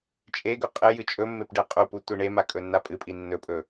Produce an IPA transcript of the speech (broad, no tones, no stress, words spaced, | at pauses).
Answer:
t͡ʃʼeɡɵ qʼɨ jɨt͡ʃʼɵmːep ɖeqʼupu tʷiɳema kʼɵnːapʼɨpʼi nːɵpʼɵ